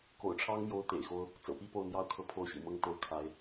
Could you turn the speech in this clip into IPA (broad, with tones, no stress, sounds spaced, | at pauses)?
k o̰˨˩ ʊ̯ ʈ͡ʂʰ ɑ˥ ŋ m j o˥ ʊ̯ t̪ ḛ˨˩ ɪ̯ x o˥ ʊ̯ | t͡s ɤ̰˨˩ p i˥˧ p o˥˩ ʊ̯ n̪ j ɑ˥ ʊ̯ kʰ ɤ˥˩ pʰ o˥ ʊ̯ ɕ ḭ˨˩ m ɤ˥˧ ŋ t̪ o˥˩ ʊ̯ kʰ a˧˥ ɪ̯